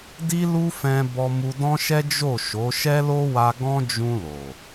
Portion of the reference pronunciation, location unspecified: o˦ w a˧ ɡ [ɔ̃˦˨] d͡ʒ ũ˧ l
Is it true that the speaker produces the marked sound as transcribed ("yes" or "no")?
no